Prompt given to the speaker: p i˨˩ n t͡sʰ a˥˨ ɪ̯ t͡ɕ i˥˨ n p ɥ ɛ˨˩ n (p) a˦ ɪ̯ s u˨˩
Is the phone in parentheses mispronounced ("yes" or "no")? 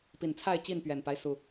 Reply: no